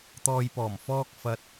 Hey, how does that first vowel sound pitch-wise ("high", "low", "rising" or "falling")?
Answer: low